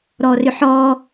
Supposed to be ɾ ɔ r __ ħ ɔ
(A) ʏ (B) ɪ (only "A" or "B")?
A